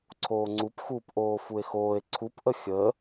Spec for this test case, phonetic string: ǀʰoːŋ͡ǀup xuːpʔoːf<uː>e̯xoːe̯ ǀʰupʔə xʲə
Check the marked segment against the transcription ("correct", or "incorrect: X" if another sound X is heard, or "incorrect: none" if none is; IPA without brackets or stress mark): incorrect: u